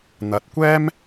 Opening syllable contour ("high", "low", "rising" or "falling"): low